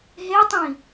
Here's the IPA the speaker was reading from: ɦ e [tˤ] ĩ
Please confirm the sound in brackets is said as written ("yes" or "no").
yes